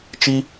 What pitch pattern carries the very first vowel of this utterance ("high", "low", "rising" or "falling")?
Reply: high